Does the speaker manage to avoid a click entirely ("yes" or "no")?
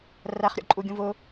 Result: no